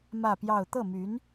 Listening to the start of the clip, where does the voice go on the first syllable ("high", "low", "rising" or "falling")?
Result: falling